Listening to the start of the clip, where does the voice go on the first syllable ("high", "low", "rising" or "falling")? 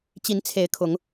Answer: rising